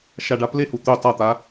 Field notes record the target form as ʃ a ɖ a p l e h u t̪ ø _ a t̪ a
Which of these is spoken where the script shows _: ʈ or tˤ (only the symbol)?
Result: tˤ